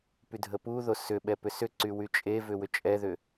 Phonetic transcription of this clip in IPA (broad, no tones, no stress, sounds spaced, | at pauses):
p y dʱ ə p u ð o s ʏ ɓ ɛ p ʏ s ʏ ǀ y w y t͡ʃʼ e v ʏ w ʏ t͡ʃʼ ɛ ð ʏ